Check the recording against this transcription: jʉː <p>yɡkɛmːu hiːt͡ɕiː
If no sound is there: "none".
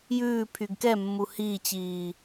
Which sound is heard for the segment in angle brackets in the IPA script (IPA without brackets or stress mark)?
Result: pʰ